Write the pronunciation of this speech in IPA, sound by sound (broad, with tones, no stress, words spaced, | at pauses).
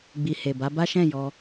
ɡ͡bi˨he˨ ba˨˦ba˦ʃɛ̃˦˨ jɔ˧